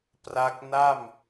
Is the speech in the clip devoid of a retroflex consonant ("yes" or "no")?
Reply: yes